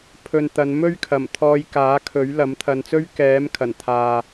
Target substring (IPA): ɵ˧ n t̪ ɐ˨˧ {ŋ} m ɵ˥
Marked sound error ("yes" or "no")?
yes